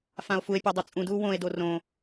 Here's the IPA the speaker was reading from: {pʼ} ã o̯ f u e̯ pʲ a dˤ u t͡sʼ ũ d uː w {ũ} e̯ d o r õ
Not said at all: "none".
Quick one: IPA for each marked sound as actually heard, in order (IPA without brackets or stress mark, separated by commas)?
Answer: f, õ